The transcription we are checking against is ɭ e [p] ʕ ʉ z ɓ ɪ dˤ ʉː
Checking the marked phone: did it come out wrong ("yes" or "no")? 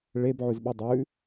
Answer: yes